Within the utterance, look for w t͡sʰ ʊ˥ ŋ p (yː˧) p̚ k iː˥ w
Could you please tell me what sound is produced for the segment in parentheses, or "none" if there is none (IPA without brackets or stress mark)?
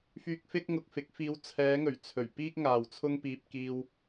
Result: iː˧